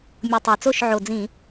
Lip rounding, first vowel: rounded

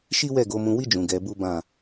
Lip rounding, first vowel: unrounded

